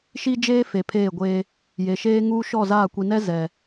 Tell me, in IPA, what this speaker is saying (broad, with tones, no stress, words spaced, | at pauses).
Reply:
ʃi˦d͡ʒeː˦ fe˨pʰeː˦˨ɡʷeː˦ | je˨ ʃeː˦ŋuː˦ʃɔ˦˨zaː˦˨ kʷi˨nɛ˦ zɛ˨